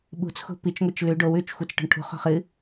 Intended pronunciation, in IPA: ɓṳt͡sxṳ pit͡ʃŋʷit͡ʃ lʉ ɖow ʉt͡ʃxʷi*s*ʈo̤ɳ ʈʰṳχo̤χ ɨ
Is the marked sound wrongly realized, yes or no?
yes